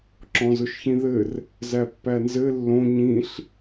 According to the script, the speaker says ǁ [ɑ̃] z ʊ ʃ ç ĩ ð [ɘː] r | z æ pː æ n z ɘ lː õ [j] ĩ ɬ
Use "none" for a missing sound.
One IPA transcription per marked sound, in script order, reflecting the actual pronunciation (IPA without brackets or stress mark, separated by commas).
ɔ̃, ɘ, ɲ